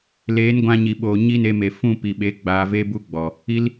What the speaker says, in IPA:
l eː˨˦ n ɡʷ ã˧ ɲ i˨ ɓ oː˨ ɲ i˦ n e˧ m e˨ f ũ˦˨ p i˨ ɓ e˨˦ ɡ͡b aː˧ v e˦ b u˦ ɡ͡b ɔ˨ | i˦ l

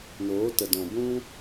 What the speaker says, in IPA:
n oː˨˦ t ə˨ d ɔ̃˨ b ũ˦

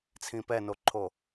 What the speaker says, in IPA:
t͡sʰ ĩ p ɛ n o ǃʰ o

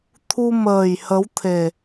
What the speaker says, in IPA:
t̪ʰ u˧ m əː˨˩ j h ə˨˦ w t̪ʰ e˨˩

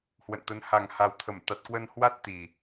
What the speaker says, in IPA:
h w ə̰˧˨ n t̪ ə˨˦ n h a˨˩ ŋ h a˨˩ w t̪ʰ ə˧˩ m t̪ a˨˩ t̚ k w ə˧ n h w a˦˥ t̚ t̪ i˨˩

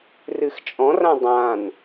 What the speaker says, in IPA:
r ɨ x t͡ʃʼ ɔ̃ r ã dˤ ã n

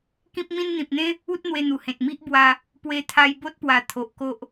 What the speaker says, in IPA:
k ĩ˦ p̚ m ĩ˦ n n̪ ĩ˨ p̚ n̪ ẽ˦ | u˦ t̚ n̪ w e˧ n̪ u˨˩ h ẽ˨ t̚ m i˦ ʔ b w a˧ | p w e˧ t̪ʰ a˧ j b o˦ t̚ p w a˨˩ t̪ʰ o˨ ʔ k o˦ ʔ

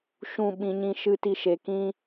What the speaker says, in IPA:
ʃ ũ˦˨ ɓ ĩ˧ ɲ ĩ˦ ʃ ɨ˦ t i˦ ʃ e˧ k ĩ˦

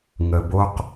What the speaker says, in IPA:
ŋ ə˩ b o˨ q

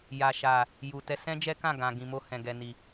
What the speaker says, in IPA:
j a˨ ʃ a˨ | j u˨ t ɛ˧ s ɛ̃˦ d͡ʒ ɛ˦ k ã˦˨ ɡ ã˨ ɡ ĩ˨ m o˧ h ɛ̃˨ ɡ ɛ˨ n i˨

